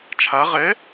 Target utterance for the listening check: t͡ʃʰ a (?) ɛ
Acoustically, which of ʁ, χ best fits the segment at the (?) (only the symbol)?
ʁ